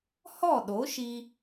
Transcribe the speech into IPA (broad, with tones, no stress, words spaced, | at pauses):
hɔ˦˨ɗo˨˦ʃi˧